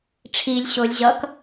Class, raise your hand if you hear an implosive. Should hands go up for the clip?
no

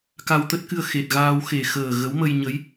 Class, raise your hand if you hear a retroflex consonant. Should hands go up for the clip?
no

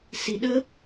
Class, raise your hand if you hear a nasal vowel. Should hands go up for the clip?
no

